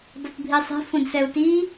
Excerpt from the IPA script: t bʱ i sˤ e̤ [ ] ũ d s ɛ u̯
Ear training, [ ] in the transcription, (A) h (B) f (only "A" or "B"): B